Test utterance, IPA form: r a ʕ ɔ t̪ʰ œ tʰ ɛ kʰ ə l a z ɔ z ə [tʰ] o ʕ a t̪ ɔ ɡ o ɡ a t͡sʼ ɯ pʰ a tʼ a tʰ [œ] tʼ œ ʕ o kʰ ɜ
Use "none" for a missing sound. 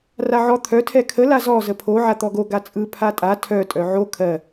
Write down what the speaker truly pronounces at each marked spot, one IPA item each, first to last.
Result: pʰ, œ

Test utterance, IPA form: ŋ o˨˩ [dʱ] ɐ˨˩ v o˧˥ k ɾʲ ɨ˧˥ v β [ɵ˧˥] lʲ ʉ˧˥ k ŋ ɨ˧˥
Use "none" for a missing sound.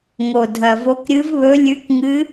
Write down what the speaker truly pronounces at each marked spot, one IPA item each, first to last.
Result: dʱ, ɵ˧˥

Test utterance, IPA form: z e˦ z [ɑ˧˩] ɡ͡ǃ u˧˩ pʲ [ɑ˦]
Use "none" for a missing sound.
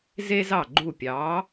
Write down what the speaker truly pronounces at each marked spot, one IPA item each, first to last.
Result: ɑ˧˩, ɑ˨˥

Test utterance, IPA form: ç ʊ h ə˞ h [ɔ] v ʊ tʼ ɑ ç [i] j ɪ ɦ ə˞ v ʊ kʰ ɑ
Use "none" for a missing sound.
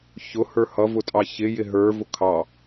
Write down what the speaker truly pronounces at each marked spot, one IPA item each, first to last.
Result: ʌ, ɪ

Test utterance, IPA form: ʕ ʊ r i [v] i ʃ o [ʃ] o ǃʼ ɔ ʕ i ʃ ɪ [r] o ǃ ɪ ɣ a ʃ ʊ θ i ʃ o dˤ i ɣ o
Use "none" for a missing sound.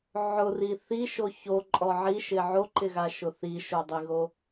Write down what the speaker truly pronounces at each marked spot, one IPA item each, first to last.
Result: θ, ç, ʕ

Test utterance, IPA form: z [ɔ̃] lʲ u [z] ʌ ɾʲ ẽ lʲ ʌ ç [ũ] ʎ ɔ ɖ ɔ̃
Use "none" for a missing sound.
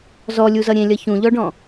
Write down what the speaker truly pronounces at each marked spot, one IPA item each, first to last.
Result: ɔ, z, ũ

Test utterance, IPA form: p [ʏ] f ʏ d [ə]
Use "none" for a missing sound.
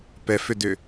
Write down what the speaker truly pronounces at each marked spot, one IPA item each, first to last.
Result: ɛ, ʏ

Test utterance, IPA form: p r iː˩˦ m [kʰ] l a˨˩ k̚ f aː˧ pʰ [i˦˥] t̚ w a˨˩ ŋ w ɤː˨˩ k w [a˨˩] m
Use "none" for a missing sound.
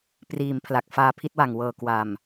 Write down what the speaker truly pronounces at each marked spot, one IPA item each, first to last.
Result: pʰ, i˥˩, a˨˩

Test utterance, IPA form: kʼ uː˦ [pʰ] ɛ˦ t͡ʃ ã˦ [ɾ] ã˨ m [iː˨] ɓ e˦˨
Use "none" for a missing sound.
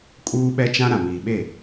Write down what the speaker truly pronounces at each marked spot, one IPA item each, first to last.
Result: ɓ, ɾ, iː˨

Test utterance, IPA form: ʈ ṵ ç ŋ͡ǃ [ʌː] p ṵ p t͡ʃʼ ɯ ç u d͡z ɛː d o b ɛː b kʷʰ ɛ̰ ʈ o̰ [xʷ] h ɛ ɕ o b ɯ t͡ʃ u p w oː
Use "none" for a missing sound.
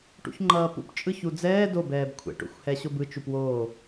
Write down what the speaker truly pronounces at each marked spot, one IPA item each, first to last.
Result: ʌː, xʷ

